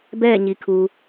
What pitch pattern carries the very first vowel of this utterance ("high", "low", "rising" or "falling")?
falling